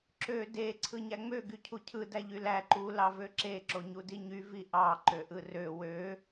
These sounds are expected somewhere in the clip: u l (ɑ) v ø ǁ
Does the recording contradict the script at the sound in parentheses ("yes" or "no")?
no